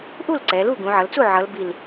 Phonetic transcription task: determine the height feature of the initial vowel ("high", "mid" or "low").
high